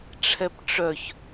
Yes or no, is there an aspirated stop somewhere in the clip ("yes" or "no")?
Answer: yes